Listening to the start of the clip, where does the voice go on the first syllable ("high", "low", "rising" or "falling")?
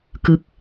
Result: falling